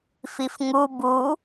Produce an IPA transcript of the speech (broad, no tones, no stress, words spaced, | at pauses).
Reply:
fifŋu bu